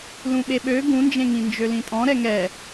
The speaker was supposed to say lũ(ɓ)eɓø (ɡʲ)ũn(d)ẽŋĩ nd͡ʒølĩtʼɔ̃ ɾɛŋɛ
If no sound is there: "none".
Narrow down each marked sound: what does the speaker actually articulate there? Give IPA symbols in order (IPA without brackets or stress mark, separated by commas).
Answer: ɓ, ɡ, d͡ʒ